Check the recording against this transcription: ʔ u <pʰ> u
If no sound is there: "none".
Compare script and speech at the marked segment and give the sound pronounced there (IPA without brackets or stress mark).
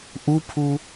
pʰ